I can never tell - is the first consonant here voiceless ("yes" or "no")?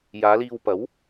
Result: no